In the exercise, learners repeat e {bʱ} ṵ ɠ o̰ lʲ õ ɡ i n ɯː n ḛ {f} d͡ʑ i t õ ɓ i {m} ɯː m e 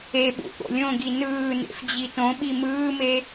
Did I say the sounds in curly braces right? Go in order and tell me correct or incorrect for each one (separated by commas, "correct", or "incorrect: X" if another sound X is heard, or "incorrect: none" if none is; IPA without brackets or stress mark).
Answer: incorrect: ɓ, correct, correct